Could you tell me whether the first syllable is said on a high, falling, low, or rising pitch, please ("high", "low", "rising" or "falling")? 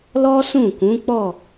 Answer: high